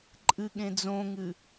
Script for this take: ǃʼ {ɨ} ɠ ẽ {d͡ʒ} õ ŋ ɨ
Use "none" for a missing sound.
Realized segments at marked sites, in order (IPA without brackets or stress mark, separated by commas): ɨ, d͡z